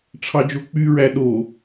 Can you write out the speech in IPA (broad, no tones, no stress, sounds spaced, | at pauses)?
ʈ͡ʂʰ ɑ d͡ʒ o k͡p y ɹ æ ɗ o